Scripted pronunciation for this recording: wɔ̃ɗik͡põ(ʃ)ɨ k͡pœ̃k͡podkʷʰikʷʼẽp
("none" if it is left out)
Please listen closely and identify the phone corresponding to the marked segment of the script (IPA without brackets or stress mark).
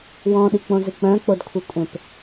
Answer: z